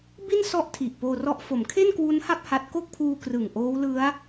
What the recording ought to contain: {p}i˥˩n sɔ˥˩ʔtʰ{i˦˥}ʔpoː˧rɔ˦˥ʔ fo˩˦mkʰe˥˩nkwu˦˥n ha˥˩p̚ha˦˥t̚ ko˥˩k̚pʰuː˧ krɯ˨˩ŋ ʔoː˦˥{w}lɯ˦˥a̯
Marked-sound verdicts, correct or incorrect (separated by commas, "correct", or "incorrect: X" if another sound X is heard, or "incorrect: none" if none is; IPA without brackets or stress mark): incorrect: b, incorrect: i˨˩, correct